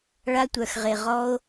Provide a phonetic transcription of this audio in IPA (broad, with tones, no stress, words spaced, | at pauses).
ɭa˧tʷœ˨xʁe˨ ʁɔ˦o̯